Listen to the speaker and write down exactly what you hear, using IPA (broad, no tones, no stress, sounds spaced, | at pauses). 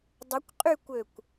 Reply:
dˤ ə kʷ qʼ y kʷ ø kʷ